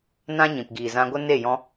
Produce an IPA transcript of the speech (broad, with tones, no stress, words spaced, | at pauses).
nã˦ ɲĩ˨pɡiː˨zã˧ɡʷə˦ ne˦˨jɔ̃˧